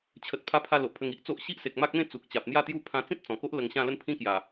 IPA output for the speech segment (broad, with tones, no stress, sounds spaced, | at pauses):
t͡ɕʰ ə˨ t̚ pʰ a˧ pʰ a˧ l o˨ ʔ pʰ ə˧ ŋ i˦ ʔ t͡s o˦ ʔ ɕ i˦ ʔ s e˨ k̚ m a˦ k̚ m ẽ˦ t͡s u˨ k̚ t͡ɕ a˨ p̚ n̪ j a˥˧ t̪ j u˥˧ pʰ ã˧ t͡s ĩ˦ t̚ t͡s ɔ̃˨˩ k o˦ ʔ l ə˧ ŋ ɕ ã˥˧ l ə˦ n pʰ ĩ˦ k j a˨˩